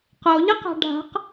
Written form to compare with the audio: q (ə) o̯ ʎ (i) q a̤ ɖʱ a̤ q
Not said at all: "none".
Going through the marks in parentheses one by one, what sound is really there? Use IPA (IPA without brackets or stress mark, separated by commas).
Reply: ə, ɪ